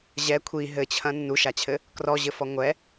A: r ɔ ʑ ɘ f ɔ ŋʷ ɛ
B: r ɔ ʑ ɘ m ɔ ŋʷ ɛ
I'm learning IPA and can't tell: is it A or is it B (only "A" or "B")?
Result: A